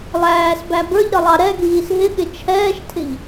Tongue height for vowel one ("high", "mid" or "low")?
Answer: low